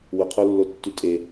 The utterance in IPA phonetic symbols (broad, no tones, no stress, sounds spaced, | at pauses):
w ʊ qʰ o lː o tː y tʼ e